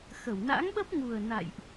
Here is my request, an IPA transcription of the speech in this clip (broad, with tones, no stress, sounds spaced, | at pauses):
x ə˧˩ w n a̰˧˥ ŋ ɓ ə˦˥ p̚ ŋ u˨˩ ə̯ n a̰˧˨ j ʔ